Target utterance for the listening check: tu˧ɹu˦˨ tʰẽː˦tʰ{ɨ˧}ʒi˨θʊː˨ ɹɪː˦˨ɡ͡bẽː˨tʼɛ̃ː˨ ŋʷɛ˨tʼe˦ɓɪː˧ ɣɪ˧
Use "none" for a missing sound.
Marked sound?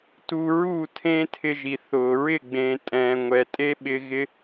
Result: ɪ˧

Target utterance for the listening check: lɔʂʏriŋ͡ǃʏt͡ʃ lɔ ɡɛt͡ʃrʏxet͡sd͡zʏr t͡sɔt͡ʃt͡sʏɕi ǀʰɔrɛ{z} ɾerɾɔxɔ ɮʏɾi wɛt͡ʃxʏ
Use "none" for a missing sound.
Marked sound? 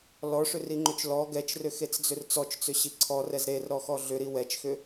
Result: z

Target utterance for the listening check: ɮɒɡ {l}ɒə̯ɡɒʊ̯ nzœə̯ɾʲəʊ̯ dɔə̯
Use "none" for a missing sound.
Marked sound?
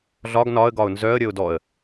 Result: n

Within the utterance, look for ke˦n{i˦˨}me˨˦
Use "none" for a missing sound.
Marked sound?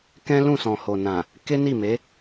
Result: i˦˨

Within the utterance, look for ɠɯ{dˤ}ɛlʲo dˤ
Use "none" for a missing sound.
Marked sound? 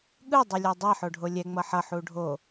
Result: dˤ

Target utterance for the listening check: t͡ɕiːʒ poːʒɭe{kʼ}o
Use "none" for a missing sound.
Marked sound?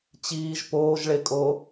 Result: kʼ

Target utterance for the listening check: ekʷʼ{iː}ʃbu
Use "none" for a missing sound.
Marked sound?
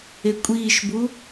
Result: iː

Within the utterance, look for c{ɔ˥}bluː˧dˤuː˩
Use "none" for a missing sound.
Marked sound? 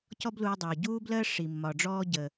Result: ɔ˥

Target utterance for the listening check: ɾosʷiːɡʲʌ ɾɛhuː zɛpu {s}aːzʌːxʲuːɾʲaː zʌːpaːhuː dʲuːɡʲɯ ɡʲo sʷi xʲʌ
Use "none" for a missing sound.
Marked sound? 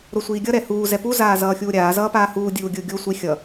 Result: z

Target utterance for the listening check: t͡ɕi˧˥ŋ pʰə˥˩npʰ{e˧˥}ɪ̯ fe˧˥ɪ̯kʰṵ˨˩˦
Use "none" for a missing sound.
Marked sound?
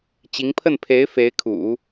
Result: e˧˥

